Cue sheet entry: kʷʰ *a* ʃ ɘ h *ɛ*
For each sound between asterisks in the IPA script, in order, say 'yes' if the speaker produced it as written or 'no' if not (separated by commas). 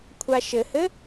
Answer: yes, no